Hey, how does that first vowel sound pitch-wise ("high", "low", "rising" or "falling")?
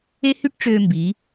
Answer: high